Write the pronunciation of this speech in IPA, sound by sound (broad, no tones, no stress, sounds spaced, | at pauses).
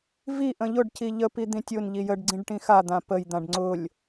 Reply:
v i ʔ ə̃ ʎ ʊ ɖ c i ʎ ə p i d̪ ĩ tʲ ʊ n ʎ i j ə ɖ ɡ͡ǀ ĩ ɖ ʈ ĩ x a d̪ ã p ə j d̪ ã ɖ ŋ͡ǀ ʊ lʲ